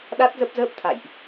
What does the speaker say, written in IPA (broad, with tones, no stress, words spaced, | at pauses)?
ɗa˦˥t̚zə˦˥p̚zəː˦˥p̚ t̪ʰa̰˧˨jʔ